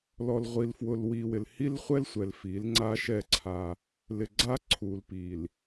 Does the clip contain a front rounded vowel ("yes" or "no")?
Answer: no